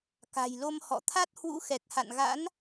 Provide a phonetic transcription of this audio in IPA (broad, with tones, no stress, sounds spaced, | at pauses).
k a̤˨˩ j l o˧ m h ɔ̰˧˨ t̪ʰ a˦˥ t̚ h w ṵ˧˥ x ɛ˨˩ k̚ h a̰˧˨ n ɣ a̰˧˥ n